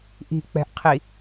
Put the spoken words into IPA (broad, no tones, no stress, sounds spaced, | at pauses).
ʔ i̤ k͡p ɛ̤ ʔ qʰ i